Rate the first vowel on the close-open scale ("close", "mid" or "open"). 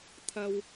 open